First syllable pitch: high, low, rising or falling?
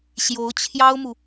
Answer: rising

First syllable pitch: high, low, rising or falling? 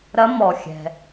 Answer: rising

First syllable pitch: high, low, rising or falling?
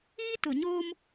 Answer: high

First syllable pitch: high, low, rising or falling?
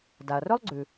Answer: low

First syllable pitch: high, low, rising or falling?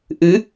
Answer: rising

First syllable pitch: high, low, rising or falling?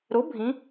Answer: rising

